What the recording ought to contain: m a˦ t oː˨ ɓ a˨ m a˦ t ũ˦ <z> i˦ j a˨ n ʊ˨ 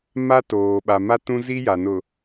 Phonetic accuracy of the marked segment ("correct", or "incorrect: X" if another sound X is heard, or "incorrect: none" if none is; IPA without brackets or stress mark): correct